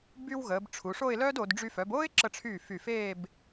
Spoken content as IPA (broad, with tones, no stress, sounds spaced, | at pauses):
b y˧ w ɣ əː˩˧ b ʈ͡ʂʰ u˩˧ ʂ o˥˧ ɪ̯ l œː˥ d o˩˧ d ɖ͡ʐ y˧ f œ˩˧ b oː˥ ɪ̯ ǁ ə˧ ʈ͡ʂʰ yː˧˩ f y˧˩ f eː˥˧ b